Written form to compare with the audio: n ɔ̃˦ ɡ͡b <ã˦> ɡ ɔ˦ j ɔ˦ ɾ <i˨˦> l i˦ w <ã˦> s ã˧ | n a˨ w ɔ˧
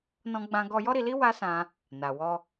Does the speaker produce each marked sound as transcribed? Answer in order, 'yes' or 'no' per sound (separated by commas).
yes, no, no